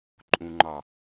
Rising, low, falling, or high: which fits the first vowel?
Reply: low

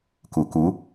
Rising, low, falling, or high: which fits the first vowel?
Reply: low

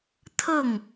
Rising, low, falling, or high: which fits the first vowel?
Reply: falling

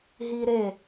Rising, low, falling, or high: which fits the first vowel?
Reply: high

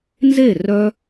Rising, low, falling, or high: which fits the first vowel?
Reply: falling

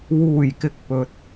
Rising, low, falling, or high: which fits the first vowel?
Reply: low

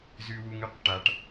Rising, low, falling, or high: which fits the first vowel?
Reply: high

